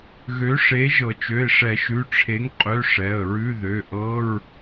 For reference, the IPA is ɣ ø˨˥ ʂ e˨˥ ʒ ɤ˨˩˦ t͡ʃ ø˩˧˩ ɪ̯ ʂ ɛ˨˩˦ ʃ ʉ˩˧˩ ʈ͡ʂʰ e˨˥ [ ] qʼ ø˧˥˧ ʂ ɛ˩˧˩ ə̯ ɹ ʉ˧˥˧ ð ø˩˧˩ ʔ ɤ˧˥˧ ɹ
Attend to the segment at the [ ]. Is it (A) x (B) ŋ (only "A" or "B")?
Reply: B